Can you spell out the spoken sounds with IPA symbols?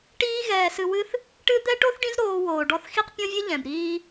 ʈ iː˦ ɣ ɛː˧ s ɨ˧ w ɨ˦ θ | ʈ ɨ˦ d̪ ɛ˦ ʈ o˦ θ ɖ ĩ˦ z ɾ oː˧ w oː˨ ɖ ɔ˧ θ x i˦ q pʲ ɔ̃˦ vʲ ɨ˦ ʎ ɛ̃˨ b ɾ iː˦

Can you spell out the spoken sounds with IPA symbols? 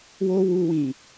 w o˦ w u˧ w ĩ˨

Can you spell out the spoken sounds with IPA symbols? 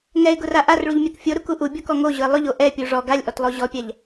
ŋ ɛ ɪ̯ ɡ ʊ r a ʔ a r ɭ u ʎ mʲ a k fʲ o ɾ u k u ʔ u bʲ ɔ k ɔ ŋ o ʑ ʊ ɪ̯ lˠ ʊ ʎ o ʔ ɛ pʲ u ʐ ɔ ɡ a lʲ ʔ ɔ t lˠ o ʑ ɔ pʲ a ʎ

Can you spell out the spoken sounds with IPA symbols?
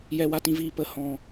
j ɛ˧ w a˧ t ĩ˧ v iː˧ p ə˧ h ɔ̃˧

